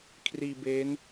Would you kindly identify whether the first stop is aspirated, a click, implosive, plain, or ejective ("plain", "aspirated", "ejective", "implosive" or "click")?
aspirated